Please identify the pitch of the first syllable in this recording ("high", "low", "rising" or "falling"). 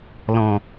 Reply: low